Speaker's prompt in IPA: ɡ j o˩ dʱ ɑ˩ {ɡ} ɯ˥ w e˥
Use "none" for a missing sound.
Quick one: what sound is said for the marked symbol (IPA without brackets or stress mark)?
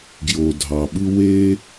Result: ɓ